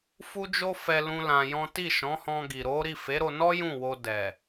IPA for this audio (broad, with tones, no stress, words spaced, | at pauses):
fu˦d͡ʒo˦fɛ˧ lũ˦lã˧jɔ̃˦ ti˦˨ʃɔ̃˨˦hɔ̃˧ ɡi˨ɾo˨˦ ɾi˦˨fe˨˦ɾo˧nɔ˦ jũ˦˨wo˧ dɛ˨